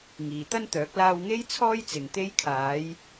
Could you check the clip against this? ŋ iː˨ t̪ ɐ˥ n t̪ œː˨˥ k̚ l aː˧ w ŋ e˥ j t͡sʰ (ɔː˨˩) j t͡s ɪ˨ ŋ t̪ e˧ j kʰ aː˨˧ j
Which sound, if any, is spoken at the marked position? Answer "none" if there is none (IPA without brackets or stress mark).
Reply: ɔː˥